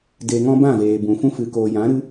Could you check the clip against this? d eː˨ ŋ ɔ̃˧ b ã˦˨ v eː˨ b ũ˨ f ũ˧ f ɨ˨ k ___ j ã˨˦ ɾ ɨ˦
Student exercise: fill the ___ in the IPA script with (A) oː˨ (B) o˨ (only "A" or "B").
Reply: A